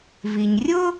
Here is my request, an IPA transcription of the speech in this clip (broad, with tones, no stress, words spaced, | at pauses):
vi˩ɲ rʲʊ˥